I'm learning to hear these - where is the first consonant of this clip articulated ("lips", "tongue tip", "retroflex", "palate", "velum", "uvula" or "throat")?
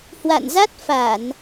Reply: throat